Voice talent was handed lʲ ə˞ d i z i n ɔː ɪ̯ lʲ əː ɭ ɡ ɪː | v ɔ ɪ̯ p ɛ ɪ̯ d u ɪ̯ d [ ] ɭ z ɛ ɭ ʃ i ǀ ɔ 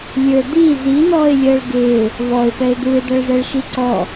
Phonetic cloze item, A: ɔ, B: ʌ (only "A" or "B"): B